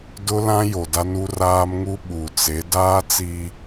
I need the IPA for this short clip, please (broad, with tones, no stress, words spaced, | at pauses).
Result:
dʊ˦lã˦ jo˨da˦nu˦ raː˦mŋu˦ ɓu˨t͡se˨˦ daː˦ t͡si˦